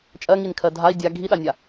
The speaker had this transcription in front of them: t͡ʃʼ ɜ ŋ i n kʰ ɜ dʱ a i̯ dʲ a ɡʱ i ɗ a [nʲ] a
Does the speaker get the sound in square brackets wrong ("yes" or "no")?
no